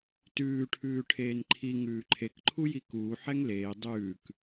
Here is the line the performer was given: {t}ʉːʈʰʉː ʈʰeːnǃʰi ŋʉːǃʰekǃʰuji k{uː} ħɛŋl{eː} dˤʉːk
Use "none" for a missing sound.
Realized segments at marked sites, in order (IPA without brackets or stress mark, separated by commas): t, uː, eː